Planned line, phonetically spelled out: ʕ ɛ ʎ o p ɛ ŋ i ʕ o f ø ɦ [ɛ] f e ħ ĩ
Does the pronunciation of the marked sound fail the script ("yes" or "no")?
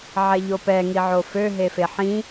yes